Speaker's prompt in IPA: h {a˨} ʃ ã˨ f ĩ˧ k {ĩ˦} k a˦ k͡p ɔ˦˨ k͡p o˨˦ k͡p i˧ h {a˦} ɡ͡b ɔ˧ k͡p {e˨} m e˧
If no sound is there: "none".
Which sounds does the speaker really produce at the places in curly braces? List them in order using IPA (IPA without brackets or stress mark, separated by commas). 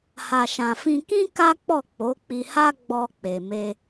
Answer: a˨, ĩ˦, a˦, e˨